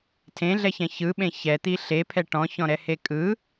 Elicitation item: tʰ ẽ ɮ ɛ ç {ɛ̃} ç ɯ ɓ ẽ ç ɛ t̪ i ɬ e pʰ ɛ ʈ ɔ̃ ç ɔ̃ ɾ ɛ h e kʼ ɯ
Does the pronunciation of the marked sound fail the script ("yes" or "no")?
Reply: no